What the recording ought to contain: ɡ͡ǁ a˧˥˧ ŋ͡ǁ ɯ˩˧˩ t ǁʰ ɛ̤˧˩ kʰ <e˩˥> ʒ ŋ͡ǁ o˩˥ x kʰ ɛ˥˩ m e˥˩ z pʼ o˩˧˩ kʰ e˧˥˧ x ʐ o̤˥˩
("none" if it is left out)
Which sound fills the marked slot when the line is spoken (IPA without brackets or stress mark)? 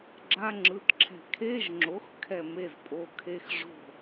e˧˥˧